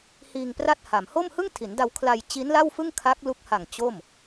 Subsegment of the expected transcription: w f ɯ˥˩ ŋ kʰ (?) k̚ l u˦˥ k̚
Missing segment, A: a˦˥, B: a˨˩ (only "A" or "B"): A